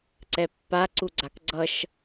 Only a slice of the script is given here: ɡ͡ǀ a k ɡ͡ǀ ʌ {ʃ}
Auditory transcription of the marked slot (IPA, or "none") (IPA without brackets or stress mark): ʃ